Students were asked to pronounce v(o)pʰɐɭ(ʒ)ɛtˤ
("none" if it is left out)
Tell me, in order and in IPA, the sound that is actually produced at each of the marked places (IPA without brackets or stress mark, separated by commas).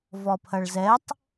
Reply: ɔ, z